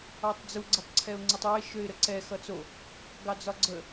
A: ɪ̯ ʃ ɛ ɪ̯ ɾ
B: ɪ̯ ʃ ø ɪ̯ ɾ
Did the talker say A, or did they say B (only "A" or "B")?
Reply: B